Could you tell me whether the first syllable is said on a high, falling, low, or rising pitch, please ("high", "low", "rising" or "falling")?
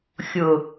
low